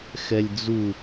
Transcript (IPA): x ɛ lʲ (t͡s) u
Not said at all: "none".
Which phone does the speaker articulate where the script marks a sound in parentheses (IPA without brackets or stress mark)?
d͡z